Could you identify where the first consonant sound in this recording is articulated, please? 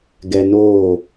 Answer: velar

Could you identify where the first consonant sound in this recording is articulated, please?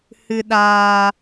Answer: glottal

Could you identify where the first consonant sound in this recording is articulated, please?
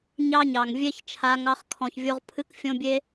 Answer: palatal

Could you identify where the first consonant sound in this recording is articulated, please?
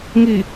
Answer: velar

